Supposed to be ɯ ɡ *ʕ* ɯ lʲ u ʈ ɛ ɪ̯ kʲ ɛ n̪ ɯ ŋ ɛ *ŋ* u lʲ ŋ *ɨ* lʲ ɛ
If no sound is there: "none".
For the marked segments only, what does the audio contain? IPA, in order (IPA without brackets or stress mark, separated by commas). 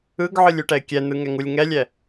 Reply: ʕ, ŋ, ɛ